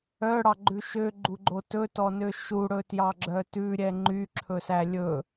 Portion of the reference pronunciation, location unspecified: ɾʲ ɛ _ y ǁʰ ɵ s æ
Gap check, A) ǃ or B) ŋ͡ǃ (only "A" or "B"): B